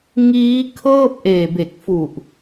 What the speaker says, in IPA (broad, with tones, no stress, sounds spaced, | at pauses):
ŋ iː˦˥ kʰ ɤː˥˩ p̚ ʔ eː˨˩ b e˨˩ k̚ f u˨˩ ʔ